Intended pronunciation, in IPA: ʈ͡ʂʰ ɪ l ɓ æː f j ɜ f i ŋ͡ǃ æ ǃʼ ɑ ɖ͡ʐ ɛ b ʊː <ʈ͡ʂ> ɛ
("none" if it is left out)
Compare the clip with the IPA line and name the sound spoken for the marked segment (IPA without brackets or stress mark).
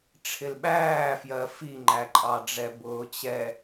t͡ɕ